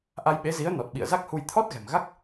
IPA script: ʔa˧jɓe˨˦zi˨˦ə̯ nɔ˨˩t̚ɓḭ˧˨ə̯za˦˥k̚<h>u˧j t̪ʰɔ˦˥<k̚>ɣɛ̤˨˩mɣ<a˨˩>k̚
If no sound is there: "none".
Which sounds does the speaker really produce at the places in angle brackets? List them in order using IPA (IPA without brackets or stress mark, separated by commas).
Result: h, t̚, a˦˥